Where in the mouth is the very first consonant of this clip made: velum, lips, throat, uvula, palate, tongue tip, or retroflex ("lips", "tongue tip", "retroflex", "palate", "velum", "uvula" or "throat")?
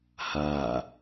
throat